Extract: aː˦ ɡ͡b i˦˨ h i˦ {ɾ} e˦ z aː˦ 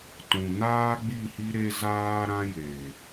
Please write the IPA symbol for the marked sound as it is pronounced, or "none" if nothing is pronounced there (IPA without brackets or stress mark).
ɾ